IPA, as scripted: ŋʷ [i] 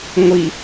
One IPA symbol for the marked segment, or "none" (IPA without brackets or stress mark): i